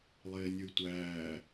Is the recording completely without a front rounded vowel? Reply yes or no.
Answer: no